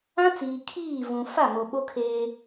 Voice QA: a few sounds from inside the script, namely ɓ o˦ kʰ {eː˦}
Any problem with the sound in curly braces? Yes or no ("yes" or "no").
no